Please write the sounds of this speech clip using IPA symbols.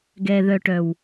ɡ ɛ˨ ð œ˨ ʈ œ˨ w

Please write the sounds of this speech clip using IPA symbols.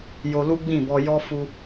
j o˧ l u˦ ɡ͡b ĩ˦˨ b ɔ˧ j ɔ˦ f u˧

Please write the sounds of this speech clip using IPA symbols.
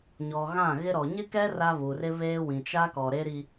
ɲ ɔ˨ ɣ ã˦˨ ɣ ɪ˦ ɾ ɔ˨ ɲ ɪ˦ k ɛ˦ r a˦ β u˨ r ɪ˦ β eː˦ w ĩ˨ t͡ʃ a˦ k ɔ˨ ɾ e˦ ɾ i˦

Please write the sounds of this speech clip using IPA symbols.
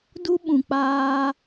d u˧ ɓ ũ˨ k͡p aː˧

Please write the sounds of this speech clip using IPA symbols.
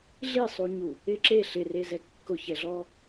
ɮ i sˤ u ɲ u | ɪ ǁ e ɬ ɪ r e z ɛ kː ʊ ç ɛ ɮ ɔ

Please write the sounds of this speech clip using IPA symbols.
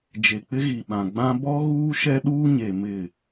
d͡ʒ e˨ k͡p ɪ˦ ɣ i˨ ɓ ã˨ ɡ͡b ã˦ b ɔ˦ ɣ uː˦ ʃ ɛ˦ ɗ uː˦ ɲ e˨ m ɪ˦˨

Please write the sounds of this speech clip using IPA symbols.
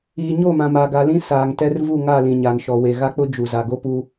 iː˨ ɲ o˦˨ m ã˨ m a˨ ɡ a˨ l ĩ˦ s aː˨ ŋ t ɛ˦ r v u˦˨ ŋ a˦˨ l ĩ˨ ɲ a˨ n ʃ ɔ˨ w e˨ ɣ a˦ k͡p ʊ˦ d͡ʒ u˨ z a˨ ɡ o˦ p u˦

